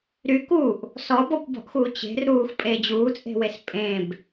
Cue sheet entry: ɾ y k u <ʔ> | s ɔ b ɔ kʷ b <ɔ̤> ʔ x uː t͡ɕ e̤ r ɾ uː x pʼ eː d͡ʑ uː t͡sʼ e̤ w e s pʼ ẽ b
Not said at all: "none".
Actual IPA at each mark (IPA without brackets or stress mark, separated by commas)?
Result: ʔ, ɔ̤